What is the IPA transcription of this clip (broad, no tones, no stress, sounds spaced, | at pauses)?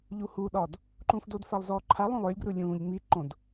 ʎ u h u ɗ ɒ d | ǃ ũː f d o d f a lˠ z ɔː ǃʰ a lˠ ũ lˠ ʏː lʲ ɡ r u lʲ ũː ʎ ŋ͡m i ǃ õ d